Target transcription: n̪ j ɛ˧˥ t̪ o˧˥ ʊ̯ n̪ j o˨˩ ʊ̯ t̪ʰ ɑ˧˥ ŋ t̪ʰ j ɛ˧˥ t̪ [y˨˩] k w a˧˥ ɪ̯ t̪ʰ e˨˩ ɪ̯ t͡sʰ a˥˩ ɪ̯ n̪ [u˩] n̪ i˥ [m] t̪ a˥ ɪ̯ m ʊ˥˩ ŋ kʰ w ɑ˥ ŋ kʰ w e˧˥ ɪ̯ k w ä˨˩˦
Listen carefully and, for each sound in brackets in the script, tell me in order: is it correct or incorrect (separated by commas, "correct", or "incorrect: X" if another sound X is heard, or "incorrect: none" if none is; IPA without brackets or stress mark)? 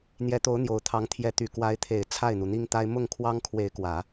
correct, correct, incorrect: ŋ